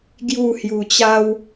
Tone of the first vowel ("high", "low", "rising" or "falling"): falling